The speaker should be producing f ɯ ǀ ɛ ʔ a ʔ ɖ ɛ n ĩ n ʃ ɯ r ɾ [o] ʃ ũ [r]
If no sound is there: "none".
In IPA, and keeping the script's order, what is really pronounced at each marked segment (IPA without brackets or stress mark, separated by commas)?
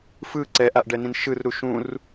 u, r